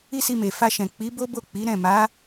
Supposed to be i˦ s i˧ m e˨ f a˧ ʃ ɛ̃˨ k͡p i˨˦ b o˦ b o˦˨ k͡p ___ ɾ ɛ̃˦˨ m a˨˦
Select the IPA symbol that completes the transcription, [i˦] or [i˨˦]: i˨˦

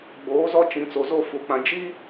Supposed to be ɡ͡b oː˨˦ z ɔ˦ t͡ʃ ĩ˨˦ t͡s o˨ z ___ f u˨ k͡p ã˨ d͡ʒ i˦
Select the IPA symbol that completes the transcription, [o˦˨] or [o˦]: o˦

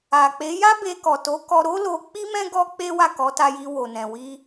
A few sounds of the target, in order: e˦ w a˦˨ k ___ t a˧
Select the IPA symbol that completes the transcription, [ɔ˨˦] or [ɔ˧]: ɔ˨˦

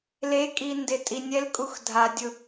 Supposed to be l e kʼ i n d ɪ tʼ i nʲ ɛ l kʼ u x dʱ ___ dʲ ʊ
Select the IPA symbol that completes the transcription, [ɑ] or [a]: a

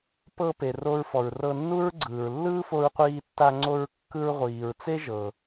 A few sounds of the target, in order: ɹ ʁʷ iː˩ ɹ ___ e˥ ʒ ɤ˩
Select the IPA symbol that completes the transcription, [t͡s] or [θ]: t͡s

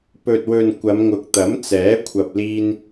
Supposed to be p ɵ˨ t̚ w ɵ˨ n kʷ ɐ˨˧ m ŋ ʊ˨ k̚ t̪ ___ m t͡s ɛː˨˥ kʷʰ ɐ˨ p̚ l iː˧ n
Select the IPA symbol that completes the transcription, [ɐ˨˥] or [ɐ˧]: ɐ˨˥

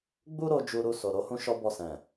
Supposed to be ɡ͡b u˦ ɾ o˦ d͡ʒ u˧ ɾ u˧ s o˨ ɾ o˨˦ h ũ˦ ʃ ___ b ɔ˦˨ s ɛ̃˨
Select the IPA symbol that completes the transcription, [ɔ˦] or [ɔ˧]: ɔ˦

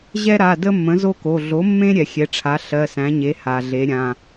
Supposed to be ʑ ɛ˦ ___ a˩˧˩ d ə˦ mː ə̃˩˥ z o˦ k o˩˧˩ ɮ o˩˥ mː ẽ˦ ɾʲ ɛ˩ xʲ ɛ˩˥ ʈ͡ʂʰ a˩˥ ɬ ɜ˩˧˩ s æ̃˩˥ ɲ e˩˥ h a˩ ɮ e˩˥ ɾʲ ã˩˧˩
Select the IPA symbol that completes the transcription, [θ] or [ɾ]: ɾ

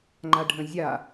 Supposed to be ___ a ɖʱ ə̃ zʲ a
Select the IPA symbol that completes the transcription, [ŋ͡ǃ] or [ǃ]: ŋ͡ǃ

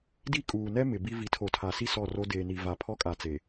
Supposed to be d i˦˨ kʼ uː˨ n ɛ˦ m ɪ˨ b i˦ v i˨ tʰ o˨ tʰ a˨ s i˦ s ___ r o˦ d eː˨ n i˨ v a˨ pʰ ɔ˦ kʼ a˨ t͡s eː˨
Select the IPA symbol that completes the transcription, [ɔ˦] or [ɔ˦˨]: ɔ˦˨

